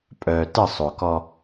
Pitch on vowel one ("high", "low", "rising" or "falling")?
low